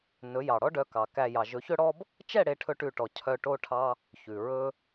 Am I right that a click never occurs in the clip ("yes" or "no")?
yes